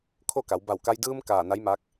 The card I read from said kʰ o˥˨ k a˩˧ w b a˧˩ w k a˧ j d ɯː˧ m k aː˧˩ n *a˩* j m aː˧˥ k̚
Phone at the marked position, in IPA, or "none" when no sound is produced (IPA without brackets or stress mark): a˧˥